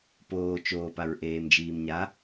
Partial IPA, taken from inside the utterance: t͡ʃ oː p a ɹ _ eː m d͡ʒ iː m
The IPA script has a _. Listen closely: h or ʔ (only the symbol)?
ʔ